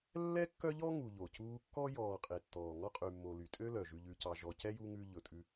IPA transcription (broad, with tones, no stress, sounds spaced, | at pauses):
lː ɛ˥ kː œ˥ ʎ ɔ˥ ŋ u˨ ʎ o˩ c uː˦ kː ɔ˥ j ɔː˨ qʼ i˩ tː ɔː˩ ŋ ɔ˥ qʼ y˨ mː o˨ l y˩ tʼ ø˥ l œ˩ ʒ ʉ˨ ʎ ʉ˨ c ɑ˨ ʒ ɔ˨ c ɛ˥ j u˦ ŋ ʉ˦ ʎ ɵ˨ tʼ ʉ˦